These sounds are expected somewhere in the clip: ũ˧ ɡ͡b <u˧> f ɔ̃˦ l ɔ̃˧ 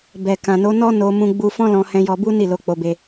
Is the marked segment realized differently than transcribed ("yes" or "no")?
no